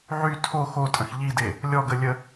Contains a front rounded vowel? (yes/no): yes